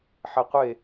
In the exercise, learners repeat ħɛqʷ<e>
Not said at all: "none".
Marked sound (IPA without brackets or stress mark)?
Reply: e